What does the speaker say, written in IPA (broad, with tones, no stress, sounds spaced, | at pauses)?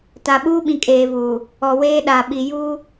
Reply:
t a˨ ɓ uː˦ ɓ ĩ˨ kʼ eː˨ v uː˨ | ɔ˨ w eː˦ ɗ a˨ ɓ i˨ j uː˦